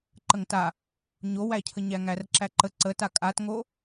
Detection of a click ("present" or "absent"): present